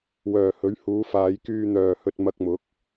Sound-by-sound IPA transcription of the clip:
w œː˨˩ h ɵ˨˥ ɥ h uː˨˧ f aː˨˧ j k yː˧ n̪ œː˨ h ɵ˧ t̚ m ɐ˧ k̚ m ʊ˨˥ k̚

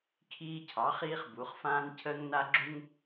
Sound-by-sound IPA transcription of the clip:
kʰ iː˦ cʰ ɑ˩˥ χ iː˦ χ b u˩˧ χ f ãː˦ n cʰ əː˦ ŋ n a˦ ɡ͡ǁ u˦ ŋ

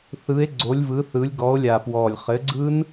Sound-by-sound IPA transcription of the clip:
θ ɯ˨˦ e̯ ɡ͡ǀ o˨˦ lʲ v ɯ˨˦ θ ɯ˨˦ lʲ ɡ ɔ˨˦ o̯ lʲ a˨˩ p w ɔ˨˩ lʲ χ ɘ˨˦ ɡ͡ǀ ɯ˦˥ n

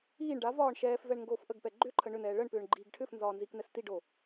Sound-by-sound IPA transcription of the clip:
iː ɳ ɖ a v ɒː ɳ ʃ ɛː f v ɛ ɳ ŋ ɡ oː f ʔ ə ɡ p ɛ ɡ͡ǃ ʏ ǃʰ ə ɳ ʏ n ɛː ɭ ə ɳ p ʏː ɳ ɡ͡ǃ iː ɡ ʈʰ ʏ f n z ɒː n z i k n ɛ s t i ɖ o

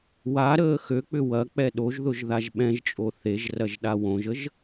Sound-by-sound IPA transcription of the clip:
w a ɾ əː x ø k͡p ʏ w ɐ k͡p ɛ ɗ o ʒ ð ʊ ʒ ð a ʒ ɓ ɛ̃ ʒ t͡ʃʼ o θ e ʒ r ɐ ʒ ɗ a w õ ʒ ə ʒ

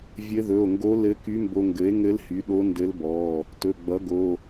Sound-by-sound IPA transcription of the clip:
vʲ ɘ˧˥ ð ɵ˩˧˩ o̯ ŋ ɡ o˧˥ l ɘ˧˥ k y˧˥ m b o˧ ŋ ɡ ɘ˩˥ e̯ ŋ ɘ˧˥ l h y˩˥ ɗ o˧˥ n d ɘ˧˥ l b ɔ˩˧˩ | t ɵ˩˧˩ ɡ͡b ʌ˩˥ ɡ o˩˧˩

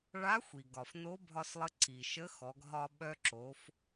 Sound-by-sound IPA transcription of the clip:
ɭ a˧˥ xʷ i˩ ɡ ɒ˩ f n o˧˥ bʱ ɒ˧ s lˠ ə˧ ǀ i˩ ʃ ə˧˥ x ɔ˩˧ ɡ ɦ ɒ˧ ɓ œ˧ ǁ o˩˧ f

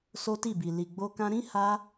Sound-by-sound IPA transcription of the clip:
s o˦ t i˦˨ b i˨ l i˨ ɡ͡b o˧ k ã˧ ɾ ĩ˦ h a˦

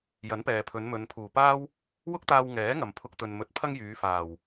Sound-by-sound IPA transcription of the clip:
j ɐ˨˥ n p ɛː˨ pʰ ɵ˨˧ n m ɵ˨˧ n pʰ uː˨˩ p aː˥ w | w ʊ˥ k̚ t̪ aː˧ w ŋ ɛː˨˥ ŋ ɐ˨ m pʰ ʊ˧ k̚ t̪ ɵ˨ n m ɵ˨˥ t̚ pʰ ɐ˥ ŋ j yː˨˧ f aː˨˩ w

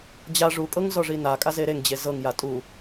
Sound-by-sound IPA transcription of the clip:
d͡ʑ a ʐ u kʼ ɤ ŋ z ɔ ʐ i n a kʼ a z e ɾ e ŋ d͡ʑ e z ɤ ŋ j a tʼ u

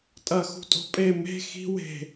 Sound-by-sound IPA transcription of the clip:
tʼ ɐ x ṳ tʼ o̤ pʼ e m e̤ x i̤ w e̤

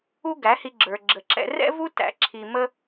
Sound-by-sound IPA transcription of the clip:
u˦ ɡ æ˨˦ h i˧ ɡ͡ǁ ə˞˧ ɡ͡ǁ ə˧ ǁ ɛ̰˦ r ɛ̰˦ v u˦ t æ̰˧ ǁʰ i˧ m ə˦

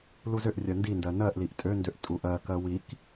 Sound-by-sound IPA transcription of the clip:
l u z ʏ ʔ rʲ ɜ n d i n d ɜ n ɜ ʔ l i ʔ tʼ ø n d ø ʔ tʼ u ʔ ɜ k ɜ w i k

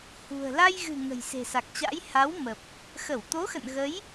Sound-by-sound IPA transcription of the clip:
h ṳ˨˩ ə̯ l a˧ j ɣ ɨ̤˨˩ ŋ ə̤˨˩ j s e̤˨˩ s a˨˩ k̚ t͡ɕ a̰˧˥ j h a˨˦ w m ə˨˩ p̚ | x ə˧˩ w t̪ o˨˦ x ə̰˧˨ n ɣ ə˨˦ j

